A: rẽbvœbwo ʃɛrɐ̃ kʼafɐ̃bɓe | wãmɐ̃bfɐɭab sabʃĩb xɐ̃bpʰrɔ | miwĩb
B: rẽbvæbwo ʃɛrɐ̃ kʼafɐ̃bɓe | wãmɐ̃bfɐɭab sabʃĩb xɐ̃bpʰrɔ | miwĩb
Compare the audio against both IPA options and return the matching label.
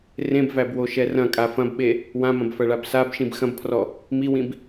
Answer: B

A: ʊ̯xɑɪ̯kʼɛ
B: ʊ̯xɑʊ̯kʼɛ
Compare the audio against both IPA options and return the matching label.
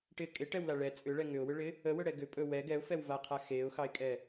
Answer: A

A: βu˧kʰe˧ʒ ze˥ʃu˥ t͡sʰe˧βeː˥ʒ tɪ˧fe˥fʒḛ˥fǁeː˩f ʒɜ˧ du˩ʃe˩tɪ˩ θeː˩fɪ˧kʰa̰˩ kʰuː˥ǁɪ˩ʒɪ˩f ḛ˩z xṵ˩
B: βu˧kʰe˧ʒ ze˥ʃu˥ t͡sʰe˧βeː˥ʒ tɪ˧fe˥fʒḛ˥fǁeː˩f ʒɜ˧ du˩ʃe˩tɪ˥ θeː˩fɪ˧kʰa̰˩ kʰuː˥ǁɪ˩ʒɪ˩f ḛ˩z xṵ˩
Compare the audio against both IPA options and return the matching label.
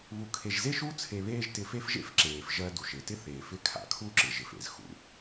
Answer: B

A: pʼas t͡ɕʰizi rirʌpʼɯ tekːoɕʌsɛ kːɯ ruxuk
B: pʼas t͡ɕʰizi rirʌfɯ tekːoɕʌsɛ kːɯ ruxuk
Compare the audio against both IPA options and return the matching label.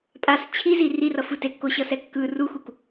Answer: B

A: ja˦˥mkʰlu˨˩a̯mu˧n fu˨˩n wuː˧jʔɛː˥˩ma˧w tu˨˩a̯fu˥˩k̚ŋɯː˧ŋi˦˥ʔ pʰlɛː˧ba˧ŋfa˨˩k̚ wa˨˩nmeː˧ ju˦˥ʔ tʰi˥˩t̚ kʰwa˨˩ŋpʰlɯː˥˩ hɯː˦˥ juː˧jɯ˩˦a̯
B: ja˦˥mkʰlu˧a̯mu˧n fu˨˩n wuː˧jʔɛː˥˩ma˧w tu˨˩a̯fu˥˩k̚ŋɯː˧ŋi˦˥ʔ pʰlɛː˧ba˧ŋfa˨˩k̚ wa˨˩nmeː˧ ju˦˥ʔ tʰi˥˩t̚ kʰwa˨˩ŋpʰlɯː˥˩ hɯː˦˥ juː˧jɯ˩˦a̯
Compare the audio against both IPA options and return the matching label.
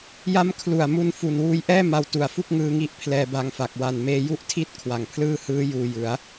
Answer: A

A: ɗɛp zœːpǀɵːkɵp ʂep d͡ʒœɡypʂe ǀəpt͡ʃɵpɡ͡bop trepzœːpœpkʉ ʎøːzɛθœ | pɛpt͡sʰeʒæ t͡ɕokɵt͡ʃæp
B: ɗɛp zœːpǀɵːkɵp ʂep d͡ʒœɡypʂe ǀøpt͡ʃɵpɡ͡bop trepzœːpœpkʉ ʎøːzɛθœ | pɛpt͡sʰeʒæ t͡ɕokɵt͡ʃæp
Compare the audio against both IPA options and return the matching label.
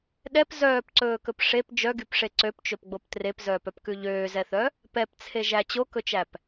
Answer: B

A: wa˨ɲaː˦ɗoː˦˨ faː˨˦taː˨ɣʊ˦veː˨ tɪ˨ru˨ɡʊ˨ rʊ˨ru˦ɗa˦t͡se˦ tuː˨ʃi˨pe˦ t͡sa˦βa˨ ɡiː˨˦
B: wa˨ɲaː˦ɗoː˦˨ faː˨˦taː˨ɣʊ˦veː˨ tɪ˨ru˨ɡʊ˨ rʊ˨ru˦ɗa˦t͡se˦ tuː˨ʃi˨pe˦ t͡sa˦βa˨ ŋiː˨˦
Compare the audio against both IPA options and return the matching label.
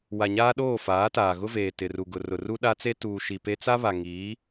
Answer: B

